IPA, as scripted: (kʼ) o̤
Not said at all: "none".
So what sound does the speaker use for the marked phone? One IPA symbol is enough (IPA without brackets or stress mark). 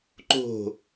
ǃ